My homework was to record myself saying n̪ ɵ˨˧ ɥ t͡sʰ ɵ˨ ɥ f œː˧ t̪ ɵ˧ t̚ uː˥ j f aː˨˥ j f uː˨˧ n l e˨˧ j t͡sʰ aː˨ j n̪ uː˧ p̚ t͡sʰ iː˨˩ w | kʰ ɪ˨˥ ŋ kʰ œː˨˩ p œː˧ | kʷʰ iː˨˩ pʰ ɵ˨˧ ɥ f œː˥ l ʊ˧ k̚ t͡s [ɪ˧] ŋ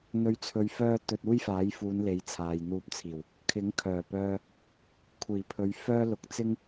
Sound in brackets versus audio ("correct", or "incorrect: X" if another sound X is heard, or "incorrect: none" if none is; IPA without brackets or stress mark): incorrect: ɪ˥